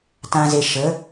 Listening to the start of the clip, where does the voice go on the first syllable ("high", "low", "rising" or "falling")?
low